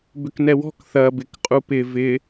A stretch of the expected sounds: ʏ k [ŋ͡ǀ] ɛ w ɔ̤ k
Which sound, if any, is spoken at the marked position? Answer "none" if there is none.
n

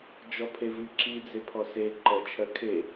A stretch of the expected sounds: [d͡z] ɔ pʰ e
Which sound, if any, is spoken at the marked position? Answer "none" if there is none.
d͡ʒ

